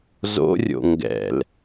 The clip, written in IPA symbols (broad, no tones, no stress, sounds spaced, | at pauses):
z o̰ rʲ o̰ ŋ ɡ ɛ̰ l